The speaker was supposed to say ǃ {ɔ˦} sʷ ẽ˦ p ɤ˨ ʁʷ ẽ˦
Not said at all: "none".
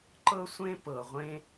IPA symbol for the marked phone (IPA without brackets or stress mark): ɤ˦